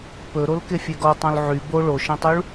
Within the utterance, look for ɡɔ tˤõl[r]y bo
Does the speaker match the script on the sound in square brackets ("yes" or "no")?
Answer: no